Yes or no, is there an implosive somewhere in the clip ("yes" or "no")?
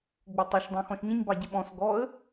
yes